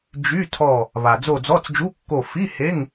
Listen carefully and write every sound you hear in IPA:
d͡ʒ y˧˥˧ tʰ ɔ˦˨ | β a˩ d͡z o˦˨ d͡z ɔ˧˥˧ t͡s d͡ʒ u˧˥˧ kː o˦˨ f i˧˥˧ h e˧˥˧ ŋ

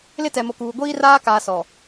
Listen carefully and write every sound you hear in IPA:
l ɪ˦ t ɛ˨ m o˨ k uː˨ ɡʷ iː˦ r aː˦ k aː˨ s ɔ˨

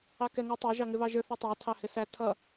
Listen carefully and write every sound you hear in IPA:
ɑ k ɛ ŋ ʌ tˤ ɑ ʒ ɑ ŋ ɪ β ɑ ʒ ə˞ θ ʌ tˤ æ tʰ ɑ h ɪ s æ tʰ ʌ

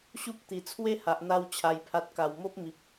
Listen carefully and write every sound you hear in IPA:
ɕ u˦ p̚ t̪ i˨˩ t͡sʰ w e˦ h a˨ ʔ n̪ a˧ w t͡ɕʰ a˨˩ j pʰ a˨ t̚ k a˨˩ w m o˦ p̚ m i˨ p̚

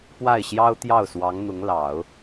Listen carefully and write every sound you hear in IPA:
p w a˥˩ ɪ̯ ɕ j ɑ˥ ʊ̯ t̪ j ɑ˥˩ ʊ̯ s w ɑ˧˥ ŋ n̪ ʊ˧˥ ŋ l ɑ˨˩˦ ʊ̯

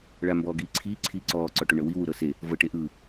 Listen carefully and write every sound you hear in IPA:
ɭ a m b ɔː ɡ iː ǀʰ iː ǀʰ iː ǀ ɔː ǀ ɔ ʈ o ɳ ɤ w i w u ɾ ɤ s e | v ɤ ʈ e ʔ ɯ

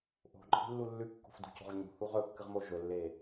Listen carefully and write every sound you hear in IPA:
ʔ o̤ ǃʼ i̤ lː u lː ʉ kː o̤ f d ṳ c o̤ ʁ ɲ ṳ h u ʁ ɵ kː ɨ ʁ m o ʒ ɵ lː e

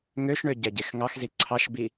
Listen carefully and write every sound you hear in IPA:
ŋ ø ʃ ɳ ø ɟ ɛ ɟ e x ŋ ɑ x z i ǀʰ ɑ ʃ b i

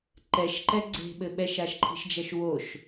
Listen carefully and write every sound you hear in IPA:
ǃ ɛ ʃ ǃ ɛ ɡ͡ǀ e̤ ɓ ɘ ɓ ɛ ʃ a ʃ ǃʰ i̤ ʃ d͡ʒ ɐ ʃ w o ʃ

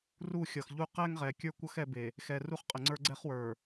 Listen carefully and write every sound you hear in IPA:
r u˦˨ xʲ ʌ˨ x ʎ u˦ q ɛ˦ ŋ ʁ ɛ˨ kʲ ə˞˦ kʷ ʌ˦ x ɛ˦ b e˨ | x ɛ˨ r u˦ χ qʼ ə˨ ŋ͡ǀ ə˞˦ ɡ͡ǀ ɛ˦ χ w ə˞˨

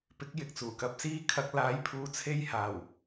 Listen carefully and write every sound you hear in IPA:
p ɪ˨˥ k̚ j ɪ˨ k̚ t͡s uː˨˩ k ɐ˧ p̚ s iː˥ kʰ ɐ˧ k̚ l aː˨˥ j pʰ uː˨ t͡sʰ e˧ j h aː˨˩ w

